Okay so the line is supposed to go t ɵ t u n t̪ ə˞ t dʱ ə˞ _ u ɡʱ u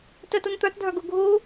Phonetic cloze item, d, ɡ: ɡ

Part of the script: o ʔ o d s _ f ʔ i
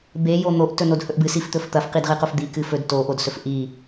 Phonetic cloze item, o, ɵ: ɵ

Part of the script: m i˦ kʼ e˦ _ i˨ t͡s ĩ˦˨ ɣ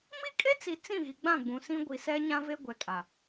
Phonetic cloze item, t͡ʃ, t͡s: t͡s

